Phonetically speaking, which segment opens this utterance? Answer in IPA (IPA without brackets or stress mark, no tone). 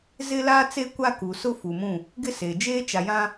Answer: z